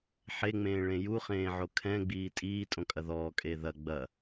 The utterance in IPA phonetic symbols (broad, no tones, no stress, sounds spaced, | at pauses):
ħ e ŋ͡m ẽː ɭ ẽ j u χ ẽː ʕ o kʰ ɛ̃ ɡ͡b iː tʼ iː tʼ õ kʼ ɐ ð ɔː kʼ e ð ɐ ɡ͡b ɐ